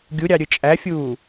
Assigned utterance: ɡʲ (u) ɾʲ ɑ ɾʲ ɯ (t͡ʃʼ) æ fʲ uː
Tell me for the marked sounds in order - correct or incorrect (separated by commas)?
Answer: correct, correct